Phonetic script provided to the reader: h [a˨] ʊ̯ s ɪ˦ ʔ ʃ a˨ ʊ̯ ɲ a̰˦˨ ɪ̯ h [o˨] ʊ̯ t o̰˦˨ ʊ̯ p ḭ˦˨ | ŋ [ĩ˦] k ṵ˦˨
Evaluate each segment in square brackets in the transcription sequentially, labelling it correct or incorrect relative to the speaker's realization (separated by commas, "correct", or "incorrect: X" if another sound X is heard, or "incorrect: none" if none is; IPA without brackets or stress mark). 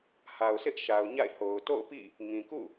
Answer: correct, correct, incorrect: ĩ˨